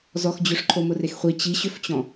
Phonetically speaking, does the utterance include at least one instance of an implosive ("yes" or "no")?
no